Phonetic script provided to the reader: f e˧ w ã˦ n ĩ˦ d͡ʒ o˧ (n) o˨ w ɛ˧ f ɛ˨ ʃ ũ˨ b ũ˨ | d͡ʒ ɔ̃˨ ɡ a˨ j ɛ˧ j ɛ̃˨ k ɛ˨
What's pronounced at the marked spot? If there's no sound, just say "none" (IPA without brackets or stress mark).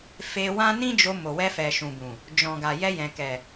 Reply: m